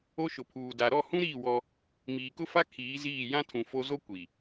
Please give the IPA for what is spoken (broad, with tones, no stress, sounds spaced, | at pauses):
o˦ ʃ ʊ˨ pʰ uː˨ d a˨ ɾ ɔ˦˨ h ũ˦ ɾ iː˦˨ w ɔ˦ | m iː˨ k ʊ˦ f a˦ kʰ iː˨˦ z iː˦˨ j ã˦ tʰ ũ˨ f o˦ z o˦ kʷ i˨